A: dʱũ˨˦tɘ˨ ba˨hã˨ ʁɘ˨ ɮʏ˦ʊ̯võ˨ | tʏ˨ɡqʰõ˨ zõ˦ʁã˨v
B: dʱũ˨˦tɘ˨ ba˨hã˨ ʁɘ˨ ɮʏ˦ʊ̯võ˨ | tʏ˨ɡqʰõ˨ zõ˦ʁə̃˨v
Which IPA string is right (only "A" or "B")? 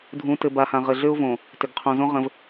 B